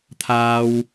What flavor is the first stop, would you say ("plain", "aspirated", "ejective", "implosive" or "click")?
aspirated